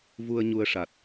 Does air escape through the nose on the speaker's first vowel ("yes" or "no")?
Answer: no